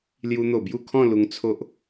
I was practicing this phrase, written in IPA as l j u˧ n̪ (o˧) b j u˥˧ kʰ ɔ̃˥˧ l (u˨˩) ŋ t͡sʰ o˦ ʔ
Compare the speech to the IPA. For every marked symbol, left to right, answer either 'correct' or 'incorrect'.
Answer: incorrect, incorrect

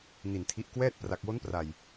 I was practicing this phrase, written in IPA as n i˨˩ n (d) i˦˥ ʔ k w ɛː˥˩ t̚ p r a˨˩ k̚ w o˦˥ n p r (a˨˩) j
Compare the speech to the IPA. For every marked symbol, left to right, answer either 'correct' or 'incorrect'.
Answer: incorrect, correct

